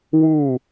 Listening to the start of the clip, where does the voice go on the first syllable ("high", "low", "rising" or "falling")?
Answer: falling